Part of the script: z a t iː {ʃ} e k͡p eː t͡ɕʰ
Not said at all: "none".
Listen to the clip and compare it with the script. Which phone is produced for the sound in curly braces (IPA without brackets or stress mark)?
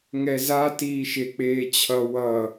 ʃ